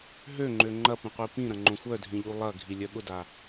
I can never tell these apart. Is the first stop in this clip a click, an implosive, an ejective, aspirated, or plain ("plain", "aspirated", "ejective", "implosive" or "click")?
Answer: click